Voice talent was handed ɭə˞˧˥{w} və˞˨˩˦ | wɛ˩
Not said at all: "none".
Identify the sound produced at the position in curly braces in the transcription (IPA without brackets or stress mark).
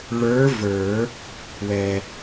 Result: none